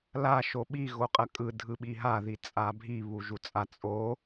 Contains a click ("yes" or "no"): no